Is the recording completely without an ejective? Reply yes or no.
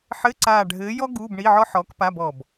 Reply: yes